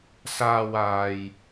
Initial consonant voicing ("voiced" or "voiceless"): voiceless